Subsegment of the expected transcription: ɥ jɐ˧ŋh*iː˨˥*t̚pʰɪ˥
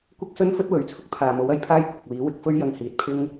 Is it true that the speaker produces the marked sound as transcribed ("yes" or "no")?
no